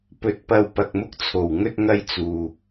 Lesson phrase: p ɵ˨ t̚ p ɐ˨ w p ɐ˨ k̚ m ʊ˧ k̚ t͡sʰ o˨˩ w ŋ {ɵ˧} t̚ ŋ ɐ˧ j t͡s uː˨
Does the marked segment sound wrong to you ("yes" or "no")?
no